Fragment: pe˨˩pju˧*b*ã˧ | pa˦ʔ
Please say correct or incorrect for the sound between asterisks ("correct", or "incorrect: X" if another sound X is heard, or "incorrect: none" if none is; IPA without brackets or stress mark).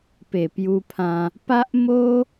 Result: incorrect: pʰ